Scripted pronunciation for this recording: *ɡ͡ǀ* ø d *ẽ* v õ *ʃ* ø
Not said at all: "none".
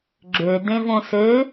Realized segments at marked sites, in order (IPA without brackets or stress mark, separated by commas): ɡ͡ǁ, ẽ, s